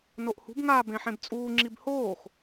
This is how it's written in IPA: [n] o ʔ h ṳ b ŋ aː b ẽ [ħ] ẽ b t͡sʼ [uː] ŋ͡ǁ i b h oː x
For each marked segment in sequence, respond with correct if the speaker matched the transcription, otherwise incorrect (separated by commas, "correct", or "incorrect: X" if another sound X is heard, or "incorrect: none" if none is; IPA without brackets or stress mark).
correct, correct, correct